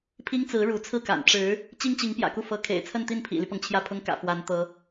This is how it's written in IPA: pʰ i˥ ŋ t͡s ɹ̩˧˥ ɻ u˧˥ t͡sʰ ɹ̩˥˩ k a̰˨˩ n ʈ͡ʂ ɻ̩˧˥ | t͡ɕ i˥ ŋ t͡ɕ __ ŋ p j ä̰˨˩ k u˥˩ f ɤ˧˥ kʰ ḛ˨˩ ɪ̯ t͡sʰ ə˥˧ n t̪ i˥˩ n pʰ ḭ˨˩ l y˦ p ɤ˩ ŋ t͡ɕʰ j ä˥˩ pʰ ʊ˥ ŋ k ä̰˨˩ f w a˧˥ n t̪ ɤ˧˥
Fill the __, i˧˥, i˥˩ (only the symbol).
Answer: i˧˥